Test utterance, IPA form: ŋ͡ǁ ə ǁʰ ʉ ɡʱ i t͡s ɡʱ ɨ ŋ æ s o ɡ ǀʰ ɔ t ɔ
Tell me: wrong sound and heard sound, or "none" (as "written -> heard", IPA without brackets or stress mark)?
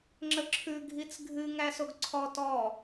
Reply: none